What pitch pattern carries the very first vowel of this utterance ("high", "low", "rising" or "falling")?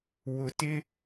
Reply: low